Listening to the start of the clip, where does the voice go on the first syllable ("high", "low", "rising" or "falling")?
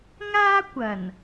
high